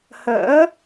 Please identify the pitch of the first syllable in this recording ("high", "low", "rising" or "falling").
rising